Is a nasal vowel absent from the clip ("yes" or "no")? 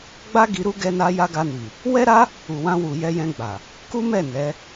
no